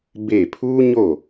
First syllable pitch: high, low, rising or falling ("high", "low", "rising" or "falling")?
falling